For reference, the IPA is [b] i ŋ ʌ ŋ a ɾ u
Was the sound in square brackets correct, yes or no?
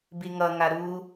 yes